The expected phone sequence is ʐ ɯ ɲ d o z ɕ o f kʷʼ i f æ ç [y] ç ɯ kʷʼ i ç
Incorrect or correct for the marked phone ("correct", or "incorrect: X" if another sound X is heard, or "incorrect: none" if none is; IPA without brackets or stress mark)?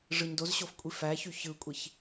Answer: correct